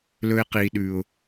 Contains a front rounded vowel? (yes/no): no